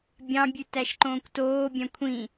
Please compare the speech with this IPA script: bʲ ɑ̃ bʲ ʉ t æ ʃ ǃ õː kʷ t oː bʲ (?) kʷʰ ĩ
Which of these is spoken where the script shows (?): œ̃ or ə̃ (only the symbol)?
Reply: œ̃